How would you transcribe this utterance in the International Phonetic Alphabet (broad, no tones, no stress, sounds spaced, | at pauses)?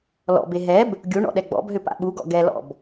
l ɔ̰ b e ɦ ɛ b | ɡʲ u ɳ ɔ̰ ɗ ɛ ɡ͡b ɔ̰ b ɦ ʏ p a̰ ɓ u ɡ ɔ̰ ɡ ɛ l ɔ̰ b